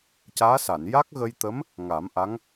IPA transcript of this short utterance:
c aː˧˥ s a˨˩˨ n j a˦˥ k̚ ɣ ə˧ j t̪ ə˧˥ m | ŋ a˨˩˦ m ʔ a˧˥ ŋ

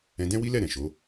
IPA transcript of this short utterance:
ɛ̃˧ d ɛ̃˦ w i˦ l ɛ˦˨ ɾ ɛ̃˨ ʃ o˨˦

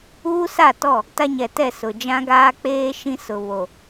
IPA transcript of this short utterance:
uː˦ s a˦˨ t ɔ˦˨ | t a˦ ɲ ɛ˨ t ɛ˦˨ s ʊ˨ d͡ʒ ã˦ ɡ aː˦ k͡p eː˦ ʃ ĩ˦ s ʊ˨ β o˨

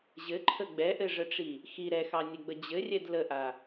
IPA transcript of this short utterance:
ʑ ɘ ǃʰ ə ɡ͡b ɛ ʔ ɘ ʐ ə ʈ͡ʂ i | x i ɾ ɛ x ɑ nʲ ɘ ɡ͡b ə d͡ʑ ɘ rʲ ɛ d l ə ʔ a

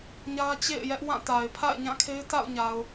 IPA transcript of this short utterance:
ɲ ä˦ t͡ɕ ḛ˦˨ ɪ̯ j ɛ˦ ʔ w ã˦˨ t a˨ ɪ̯ pʰ a̰˦˨ ɪ̯ ɲ ã˦˨ kʰ e˦ ɪ̯ t a̰˦˨ ʊ̯ ɲ a˨ ʊ̯

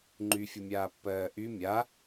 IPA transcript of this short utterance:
ŋ͡ǃ y fʲ ʊ mʲ aː pː ɜː ʔ y mʲ a

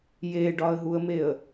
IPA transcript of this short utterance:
j e ɖ ɒ ə̯ ɦ u ə̯ m e ə̯

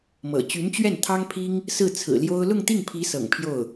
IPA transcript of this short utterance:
m ɤ̰˨˩ t͡ɕ y˧˥ n t͡ɕ ɥ ɛ˥˩ n t̪ʰ ɑ˥ ŋ pʰ i˥ ŋ | s ɹ̩˥˩ t͡sʰ ɹ̩˨˩ l j o˥ ʊ̯ l ʊ˥˧ ŋ t̪ i˥˩ ŋ pʰ i˧˥ s ɤ̰˨˩ ŋ pʰ j o˥˩ ʊ̯

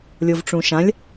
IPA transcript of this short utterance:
lʲ o v ʈ͡ʂ ũ ʃ ã lʲ

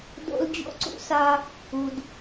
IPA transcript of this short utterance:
d o̰˧ l d͡ʑ o̰˦ ǀ ṵ˧ s a˧ | u˨ d

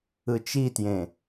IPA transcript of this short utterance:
ɯ t͡ʃ i t j ẽ

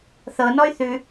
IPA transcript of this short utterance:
θ ɤ n ɔ y̯ θ ʉ

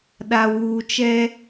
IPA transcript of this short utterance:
ɗ a˨ w uː˨ t͡ʃ ɛ˦

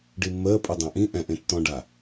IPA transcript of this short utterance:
ɖ i mː əː pʼ ɯ dˤ ã ʔ ĩ ʔ ɛ̃ ʔ ẽ tː ɔ̃ ɖ a

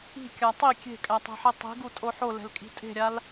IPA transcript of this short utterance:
i̤ kʲ a tˤ i kʲ e̤ kʼ æ tˤ ɛ̤ ħ e tˤ i̤ ɡ u tʼ o ħ o l ɛ̤ l kʼ i̤ tʼ e̤ ɾʲ a l

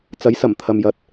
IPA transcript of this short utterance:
t͡s ɐ˨˥ j s ɐ˨˩ m t̪ʰ ɐ˨ m j ɐ˨ t̚

